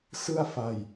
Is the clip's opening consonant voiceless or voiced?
voiceless